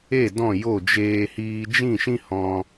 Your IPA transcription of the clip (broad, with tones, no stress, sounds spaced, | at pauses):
e˦˨ d ɔ̃˦˨ j o˦˨ d͡ʒ eː˧ h iː˧ d͡ʒ ĩ˦˨ ʃ ĩ˦ h ɔ̃˧